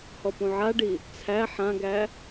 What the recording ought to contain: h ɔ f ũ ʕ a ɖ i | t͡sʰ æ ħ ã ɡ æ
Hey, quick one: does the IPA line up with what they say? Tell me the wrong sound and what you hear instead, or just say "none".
f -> p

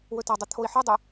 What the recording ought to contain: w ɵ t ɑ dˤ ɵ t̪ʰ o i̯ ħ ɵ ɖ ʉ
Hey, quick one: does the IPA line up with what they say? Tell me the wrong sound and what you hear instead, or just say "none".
ɖ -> dˤ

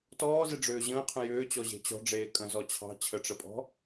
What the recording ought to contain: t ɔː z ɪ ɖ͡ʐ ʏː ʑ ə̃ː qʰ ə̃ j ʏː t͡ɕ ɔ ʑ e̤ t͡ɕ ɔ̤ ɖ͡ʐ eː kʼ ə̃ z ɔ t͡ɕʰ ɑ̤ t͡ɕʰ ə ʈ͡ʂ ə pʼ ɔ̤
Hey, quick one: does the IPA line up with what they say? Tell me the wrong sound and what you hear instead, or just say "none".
none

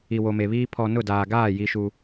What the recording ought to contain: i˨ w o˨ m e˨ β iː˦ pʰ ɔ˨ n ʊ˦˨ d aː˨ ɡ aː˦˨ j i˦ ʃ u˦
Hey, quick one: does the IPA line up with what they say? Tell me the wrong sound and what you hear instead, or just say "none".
none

